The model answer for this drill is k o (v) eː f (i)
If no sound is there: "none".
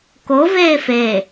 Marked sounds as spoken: v, e

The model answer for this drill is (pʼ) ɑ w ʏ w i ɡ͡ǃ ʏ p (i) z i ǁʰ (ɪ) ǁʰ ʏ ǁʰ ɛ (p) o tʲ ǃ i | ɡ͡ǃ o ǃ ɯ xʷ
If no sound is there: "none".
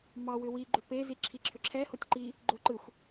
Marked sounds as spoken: m, e, i, h

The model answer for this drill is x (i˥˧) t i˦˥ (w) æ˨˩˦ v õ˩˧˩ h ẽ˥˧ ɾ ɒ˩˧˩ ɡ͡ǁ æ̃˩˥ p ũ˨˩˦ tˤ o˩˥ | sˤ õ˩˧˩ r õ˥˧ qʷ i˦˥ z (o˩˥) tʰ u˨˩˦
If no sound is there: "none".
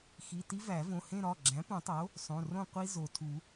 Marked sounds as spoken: i˩˧˩, v, o˩

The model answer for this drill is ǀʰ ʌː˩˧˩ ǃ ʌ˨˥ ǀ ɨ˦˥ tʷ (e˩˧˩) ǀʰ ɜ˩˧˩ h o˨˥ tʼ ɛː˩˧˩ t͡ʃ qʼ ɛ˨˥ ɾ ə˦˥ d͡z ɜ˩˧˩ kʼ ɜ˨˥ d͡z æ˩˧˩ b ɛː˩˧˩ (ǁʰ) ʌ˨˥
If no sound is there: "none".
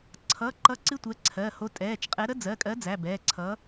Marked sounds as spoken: ɛ˩˧˩, ǀʰ

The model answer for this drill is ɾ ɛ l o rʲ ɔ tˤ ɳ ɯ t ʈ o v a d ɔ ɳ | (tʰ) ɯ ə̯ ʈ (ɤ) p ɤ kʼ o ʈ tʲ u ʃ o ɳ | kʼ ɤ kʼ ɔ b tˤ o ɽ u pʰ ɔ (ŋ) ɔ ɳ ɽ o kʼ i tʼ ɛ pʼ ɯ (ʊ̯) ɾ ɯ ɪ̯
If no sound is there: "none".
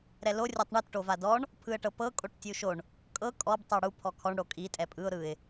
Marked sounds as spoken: pʰ, ɤ, kʰ, ʊ̯

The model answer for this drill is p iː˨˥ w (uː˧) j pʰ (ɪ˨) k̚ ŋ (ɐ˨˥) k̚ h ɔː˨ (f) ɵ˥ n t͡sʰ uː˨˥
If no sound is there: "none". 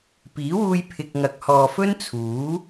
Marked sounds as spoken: uː˧, ɪ˨, ɐ˨˥, f

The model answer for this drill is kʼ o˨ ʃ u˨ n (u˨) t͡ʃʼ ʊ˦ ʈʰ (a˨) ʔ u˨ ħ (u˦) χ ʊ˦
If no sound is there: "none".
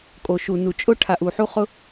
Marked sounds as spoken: u˨, a˨, u˦

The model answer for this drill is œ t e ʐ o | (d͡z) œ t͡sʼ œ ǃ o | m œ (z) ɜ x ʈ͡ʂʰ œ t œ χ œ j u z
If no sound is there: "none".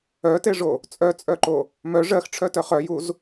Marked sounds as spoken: t͡sʼ, ʐ

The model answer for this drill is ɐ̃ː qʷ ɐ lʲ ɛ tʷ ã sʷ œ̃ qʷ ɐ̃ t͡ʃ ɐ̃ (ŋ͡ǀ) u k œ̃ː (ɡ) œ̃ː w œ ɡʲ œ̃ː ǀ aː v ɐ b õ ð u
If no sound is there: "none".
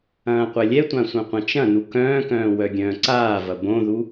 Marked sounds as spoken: n, k

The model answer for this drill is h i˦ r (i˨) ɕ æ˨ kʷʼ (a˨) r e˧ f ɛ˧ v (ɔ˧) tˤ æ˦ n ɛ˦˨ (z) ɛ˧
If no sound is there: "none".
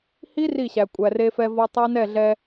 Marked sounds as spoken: i˦˨, æ˨, ɔ˧, ɮ

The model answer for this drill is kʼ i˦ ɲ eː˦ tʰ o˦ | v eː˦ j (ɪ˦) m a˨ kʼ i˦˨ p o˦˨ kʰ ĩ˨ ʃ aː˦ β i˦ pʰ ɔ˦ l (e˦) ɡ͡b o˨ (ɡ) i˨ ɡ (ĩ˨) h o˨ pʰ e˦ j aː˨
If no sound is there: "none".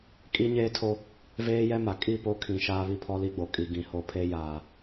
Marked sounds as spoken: ɛ˦, i˦, kʼ, ĩ˨

